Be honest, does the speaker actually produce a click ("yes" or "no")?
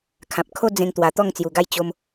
no